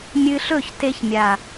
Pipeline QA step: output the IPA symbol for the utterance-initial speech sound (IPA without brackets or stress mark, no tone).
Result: mʲ